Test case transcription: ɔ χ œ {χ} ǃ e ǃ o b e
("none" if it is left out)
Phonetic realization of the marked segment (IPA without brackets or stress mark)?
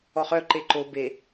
none